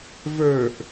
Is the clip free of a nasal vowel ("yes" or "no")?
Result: yes